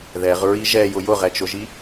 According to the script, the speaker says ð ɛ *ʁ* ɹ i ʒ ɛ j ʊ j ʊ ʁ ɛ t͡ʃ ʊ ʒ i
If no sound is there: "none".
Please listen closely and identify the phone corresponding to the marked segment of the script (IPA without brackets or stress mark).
ʁ